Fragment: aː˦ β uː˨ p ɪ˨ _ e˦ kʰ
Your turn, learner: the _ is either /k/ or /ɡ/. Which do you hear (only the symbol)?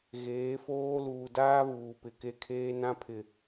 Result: k